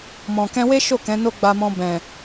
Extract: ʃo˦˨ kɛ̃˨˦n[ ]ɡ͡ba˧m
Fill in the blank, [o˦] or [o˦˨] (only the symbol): o˦